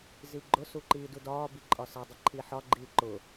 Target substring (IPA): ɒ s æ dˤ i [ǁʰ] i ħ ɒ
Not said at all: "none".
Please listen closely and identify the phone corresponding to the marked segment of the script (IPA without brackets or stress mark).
ǃʰ